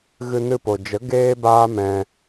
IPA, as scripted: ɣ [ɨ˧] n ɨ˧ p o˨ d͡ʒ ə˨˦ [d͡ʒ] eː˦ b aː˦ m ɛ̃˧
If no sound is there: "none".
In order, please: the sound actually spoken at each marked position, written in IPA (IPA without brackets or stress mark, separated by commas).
ɨ˧, ɡ